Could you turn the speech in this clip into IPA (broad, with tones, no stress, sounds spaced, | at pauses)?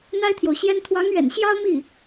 n̪ a˥ ɪ̯ t̪ʰ j o˨ ʊ̯ ɕ j ɛ˥ n t̪ʰ w ɑ˧˥ ŋ ɥ ɛ̰˨˩ n ɕ j ɑ˥ ʊ̯ m i˥˩